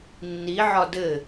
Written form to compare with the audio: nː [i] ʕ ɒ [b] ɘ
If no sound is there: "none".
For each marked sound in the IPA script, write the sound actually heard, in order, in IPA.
i, d

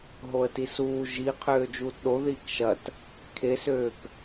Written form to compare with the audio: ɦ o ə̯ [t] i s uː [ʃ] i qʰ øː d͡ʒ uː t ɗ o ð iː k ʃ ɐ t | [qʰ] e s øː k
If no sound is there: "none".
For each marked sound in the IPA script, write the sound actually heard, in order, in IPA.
t, ʒ, kʰ

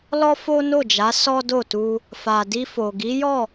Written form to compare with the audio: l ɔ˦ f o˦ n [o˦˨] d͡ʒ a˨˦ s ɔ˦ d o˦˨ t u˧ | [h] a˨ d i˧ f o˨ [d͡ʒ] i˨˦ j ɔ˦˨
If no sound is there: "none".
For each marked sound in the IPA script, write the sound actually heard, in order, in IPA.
o˦˨, f, ɡ

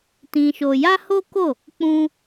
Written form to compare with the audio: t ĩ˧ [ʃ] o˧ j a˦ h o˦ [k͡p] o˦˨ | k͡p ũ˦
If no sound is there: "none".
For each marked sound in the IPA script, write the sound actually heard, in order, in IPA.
ʃ, k

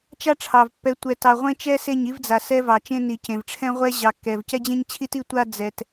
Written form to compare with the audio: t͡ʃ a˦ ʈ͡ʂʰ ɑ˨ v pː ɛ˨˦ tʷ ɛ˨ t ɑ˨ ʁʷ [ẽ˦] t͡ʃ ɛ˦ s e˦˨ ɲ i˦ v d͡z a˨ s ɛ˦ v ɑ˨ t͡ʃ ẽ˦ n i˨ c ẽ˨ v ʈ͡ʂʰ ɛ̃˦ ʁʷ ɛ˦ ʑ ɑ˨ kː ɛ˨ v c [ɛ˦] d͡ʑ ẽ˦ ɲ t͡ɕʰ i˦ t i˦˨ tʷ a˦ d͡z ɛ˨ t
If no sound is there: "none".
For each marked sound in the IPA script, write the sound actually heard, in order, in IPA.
ẽ˦, ɛ˦

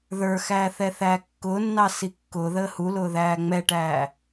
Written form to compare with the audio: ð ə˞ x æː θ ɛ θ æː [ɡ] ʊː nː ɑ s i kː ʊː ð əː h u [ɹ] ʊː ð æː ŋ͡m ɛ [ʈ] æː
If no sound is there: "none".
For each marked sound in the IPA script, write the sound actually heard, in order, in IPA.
kː, l, ʈ

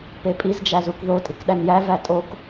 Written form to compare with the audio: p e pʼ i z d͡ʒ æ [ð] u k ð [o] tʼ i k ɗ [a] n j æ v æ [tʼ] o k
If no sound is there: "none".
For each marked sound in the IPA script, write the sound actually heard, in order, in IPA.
z, o, æ, tʼ

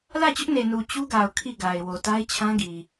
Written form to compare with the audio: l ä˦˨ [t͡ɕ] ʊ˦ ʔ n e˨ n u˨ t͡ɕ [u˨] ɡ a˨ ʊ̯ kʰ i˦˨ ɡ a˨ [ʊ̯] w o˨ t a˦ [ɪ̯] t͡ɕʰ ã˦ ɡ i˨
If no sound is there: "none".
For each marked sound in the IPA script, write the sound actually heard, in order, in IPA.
t͡ɕ, u˦, ɪ̯, ɪ̯

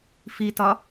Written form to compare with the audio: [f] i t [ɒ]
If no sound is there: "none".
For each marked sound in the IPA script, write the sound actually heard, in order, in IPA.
f, ɒ

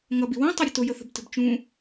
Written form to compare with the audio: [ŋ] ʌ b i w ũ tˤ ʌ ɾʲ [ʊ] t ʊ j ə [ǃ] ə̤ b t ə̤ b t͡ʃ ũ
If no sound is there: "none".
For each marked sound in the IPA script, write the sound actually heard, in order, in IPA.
ŋ, ʊ, θ

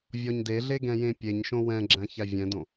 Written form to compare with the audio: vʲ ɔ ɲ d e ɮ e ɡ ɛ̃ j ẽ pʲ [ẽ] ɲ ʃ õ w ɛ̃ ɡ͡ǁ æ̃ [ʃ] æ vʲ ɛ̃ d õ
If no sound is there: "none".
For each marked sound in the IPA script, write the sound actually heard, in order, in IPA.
e, ç

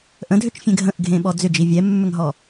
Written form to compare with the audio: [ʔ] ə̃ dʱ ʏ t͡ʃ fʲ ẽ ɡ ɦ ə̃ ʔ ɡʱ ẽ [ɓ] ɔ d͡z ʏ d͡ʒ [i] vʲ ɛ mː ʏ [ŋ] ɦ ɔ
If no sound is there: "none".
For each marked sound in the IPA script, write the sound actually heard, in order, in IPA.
ʔ, ɓ, i, ŋ

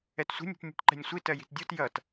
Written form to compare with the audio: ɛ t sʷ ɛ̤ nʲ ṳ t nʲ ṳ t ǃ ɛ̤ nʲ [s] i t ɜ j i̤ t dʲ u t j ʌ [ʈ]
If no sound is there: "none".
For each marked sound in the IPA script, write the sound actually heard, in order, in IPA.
sʷ, t

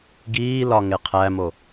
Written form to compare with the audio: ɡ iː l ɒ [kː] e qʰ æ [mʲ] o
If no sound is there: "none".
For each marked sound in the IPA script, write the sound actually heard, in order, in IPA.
ŋ, m

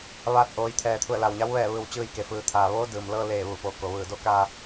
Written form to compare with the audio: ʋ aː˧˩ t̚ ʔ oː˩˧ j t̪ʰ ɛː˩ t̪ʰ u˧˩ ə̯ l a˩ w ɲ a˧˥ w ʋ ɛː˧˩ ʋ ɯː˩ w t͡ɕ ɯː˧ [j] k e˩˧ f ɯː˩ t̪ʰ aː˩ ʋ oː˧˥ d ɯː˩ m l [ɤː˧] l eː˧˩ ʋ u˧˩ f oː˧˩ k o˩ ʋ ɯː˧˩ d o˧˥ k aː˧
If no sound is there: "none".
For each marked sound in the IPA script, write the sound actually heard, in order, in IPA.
j, ɤː˧

